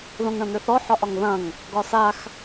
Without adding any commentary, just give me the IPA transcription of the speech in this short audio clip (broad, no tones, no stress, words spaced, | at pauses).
ðõŋɳɐ̃n̪ʏθɔ ħɒʔɒŋðɐ̃ŋ | ɡɒsax